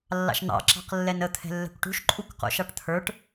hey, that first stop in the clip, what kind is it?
click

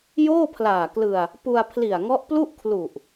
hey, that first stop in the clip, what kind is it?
aspirated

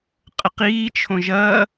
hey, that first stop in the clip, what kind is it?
ejective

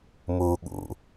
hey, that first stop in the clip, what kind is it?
implosive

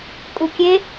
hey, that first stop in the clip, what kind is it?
ejective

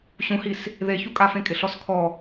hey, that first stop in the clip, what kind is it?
ejective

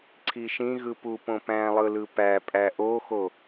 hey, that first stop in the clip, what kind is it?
click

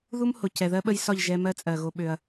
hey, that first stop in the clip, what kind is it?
plain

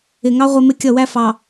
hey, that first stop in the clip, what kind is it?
plain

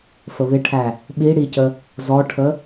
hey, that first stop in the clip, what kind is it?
aspirated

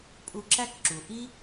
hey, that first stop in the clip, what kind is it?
ejective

